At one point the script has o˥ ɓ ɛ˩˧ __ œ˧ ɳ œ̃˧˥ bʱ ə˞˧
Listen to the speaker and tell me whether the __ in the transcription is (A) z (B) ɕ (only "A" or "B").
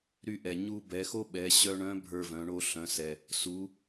B